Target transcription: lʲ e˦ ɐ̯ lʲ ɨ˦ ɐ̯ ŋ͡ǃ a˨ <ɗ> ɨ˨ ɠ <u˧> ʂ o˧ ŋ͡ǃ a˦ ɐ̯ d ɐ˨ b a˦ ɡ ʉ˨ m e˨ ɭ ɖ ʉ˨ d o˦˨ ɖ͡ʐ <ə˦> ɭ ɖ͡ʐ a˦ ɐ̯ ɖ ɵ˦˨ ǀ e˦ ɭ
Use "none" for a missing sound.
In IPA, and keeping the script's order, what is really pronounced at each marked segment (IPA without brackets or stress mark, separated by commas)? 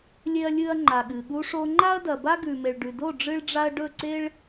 ɠ, u˧, ɨ˦